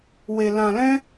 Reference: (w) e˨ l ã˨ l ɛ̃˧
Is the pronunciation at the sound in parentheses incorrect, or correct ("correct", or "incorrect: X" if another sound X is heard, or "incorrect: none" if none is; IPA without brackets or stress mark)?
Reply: correct